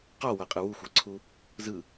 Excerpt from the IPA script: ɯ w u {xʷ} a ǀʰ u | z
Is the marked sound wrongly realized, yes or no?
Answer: no